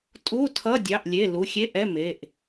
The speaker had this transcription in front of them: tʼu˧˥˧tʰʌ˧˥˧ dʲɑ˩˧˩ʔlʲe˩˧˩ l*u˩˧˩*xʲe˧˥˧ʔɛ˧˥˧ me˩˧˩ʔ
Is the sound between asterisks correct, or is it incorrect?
correct